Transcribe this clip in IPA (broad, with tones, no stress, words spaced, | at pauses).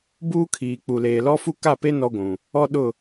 buː˦kʰiː˨k͡pu˨ leː˨lɔ˦fu˦ ka˦˨pe˦ nɔ˦ɡʷũ˨ | ɔ˦ɗʊ˦˨